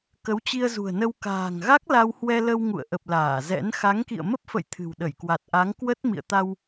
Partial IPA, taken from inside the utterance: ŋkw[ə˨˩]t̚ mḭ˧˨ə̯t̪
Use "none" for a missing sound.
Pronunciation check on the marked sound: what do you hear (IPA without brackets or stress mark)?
ə˦˥